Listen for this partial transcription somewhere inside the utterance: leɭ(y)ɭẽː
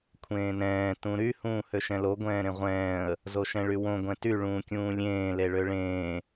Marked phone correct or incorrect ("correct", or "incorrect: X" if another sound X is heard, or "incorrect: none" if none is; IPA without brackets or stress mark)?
incorrect: ø